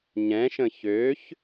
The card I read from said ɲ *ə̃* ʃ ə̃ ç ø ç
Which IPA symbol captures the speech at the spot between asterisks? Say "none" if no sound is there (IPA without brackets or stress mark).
ɛ̃